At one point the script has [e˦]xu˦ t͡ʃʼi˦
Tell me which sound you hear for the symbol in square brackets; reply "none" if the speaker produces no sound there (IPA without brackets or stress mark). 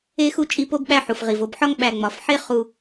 e˦